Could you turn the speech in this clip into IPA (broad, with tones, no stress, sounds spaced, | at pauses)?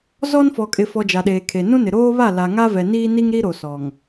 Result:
z ɔ˦ n f ɔ˨ kʼ ɪ˨ f ɔ˨ d͡ʒ a˨ ɗ eː˨ kʰ e˨ n ũ˦ n ɪ˨ ɾ oː˦ β a˦˨ l a˨ ŋ a˦ v ɛ˨ n iː˦ n i˦ ŋ ɾ i˦ ɾ o˨ s ɔ˨ ŋ